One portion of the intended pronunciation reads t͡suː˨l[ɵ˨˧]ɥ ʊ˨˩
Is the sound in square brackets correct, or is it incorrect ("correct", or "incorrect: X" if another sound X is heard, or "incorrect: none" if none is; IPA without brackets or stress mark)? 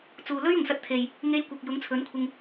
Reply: incorrect: ɵ˥